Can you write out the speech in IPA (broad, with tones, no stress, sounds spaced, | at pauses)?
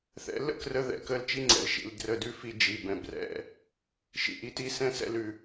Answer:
θ ɛ̰˨˦ l ə̰˦ k r ə˧ ð ɛ̰˨ k ə˦˨ l t͡ʃ i˦ ŋ͡ǀ ɛ̰˨ l ʃ ḭ˨ l d r ə˧ d ʉ˦ f i˧ d͡ʒ i˨ b ɛ̃˨ b r ɛ̰˦˨ | ʃ ḭ˨ ʔ i˧ t i˧ s ɛ̃˦ s ɛ̰˧ l ʉ˨